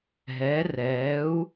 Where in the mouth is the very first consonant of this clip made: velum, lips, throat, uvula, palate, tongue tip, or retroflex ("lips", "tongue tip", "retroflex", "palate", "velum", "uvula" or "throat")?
throat